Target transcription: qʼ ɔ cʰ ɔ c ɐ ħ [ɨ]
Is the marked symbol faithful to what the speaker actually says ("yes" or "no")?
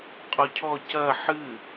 yes